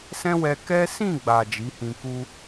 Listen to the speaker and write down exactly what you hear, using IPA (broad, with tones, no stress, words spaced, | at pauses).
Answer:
sɛ̃˦wɛ˧ kɛ˦ sĩ˦˨ɡ͡ba˨ d͡ʒi˨˦hĩ˧ku˦